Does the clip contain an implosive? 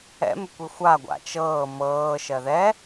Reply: no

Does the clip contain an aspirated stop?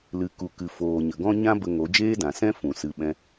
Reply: no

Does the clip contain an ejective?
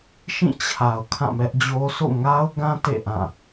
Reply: no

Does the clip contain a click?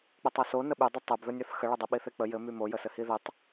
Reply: no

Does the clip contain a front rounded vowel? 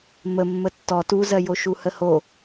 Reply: no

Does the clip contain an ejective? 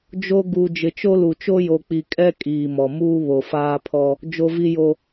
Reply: yes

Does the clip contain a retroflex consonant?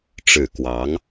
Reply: yes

